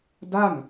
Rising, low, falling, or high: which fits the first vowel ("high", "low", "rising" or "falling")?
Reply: falling